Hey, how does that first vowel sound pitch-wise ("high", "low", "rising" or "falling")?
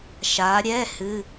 rising